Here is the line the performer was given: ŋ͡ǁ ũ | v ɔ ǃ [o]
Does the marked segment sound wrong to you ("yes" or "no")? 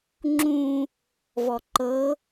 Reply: yes